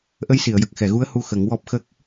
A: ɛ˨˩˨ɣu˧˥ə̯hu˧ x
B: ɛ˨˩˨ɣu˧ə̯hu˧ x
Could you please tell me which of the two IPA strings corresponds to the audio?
A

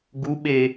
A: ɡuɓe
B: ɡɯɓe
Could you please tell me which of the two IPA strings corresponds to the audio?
A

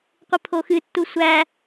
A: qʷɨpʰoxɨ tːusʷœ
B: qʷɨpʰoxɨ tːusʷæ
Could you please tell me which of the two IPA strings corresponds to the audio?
B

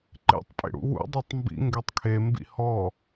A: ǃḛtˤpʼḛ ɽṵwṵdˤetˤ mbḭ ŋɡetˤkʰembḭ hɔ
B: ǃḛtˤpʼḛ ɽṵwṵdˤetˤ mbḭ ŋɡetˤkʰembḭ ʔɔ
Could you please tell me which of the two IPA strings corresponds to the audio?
A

